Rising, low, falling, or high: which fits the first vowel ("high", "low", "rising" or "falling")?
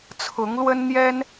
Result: rising